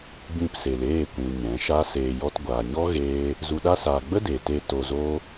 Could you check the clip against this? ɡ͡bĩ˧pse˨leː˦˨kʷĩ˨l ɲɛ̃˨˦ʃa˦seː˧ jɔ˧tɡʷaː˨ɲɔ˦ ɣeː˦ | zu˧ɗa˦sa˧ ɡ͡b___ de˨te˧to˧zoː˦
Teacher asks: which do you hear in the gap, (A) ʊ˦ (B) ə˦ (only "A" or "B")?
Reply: B